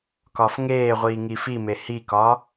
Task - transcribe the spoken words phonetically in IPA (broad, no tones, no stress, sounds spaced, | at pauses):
k ɒ f ŋ eː ʁʷ iː ŋ i f i m e h i k ɒ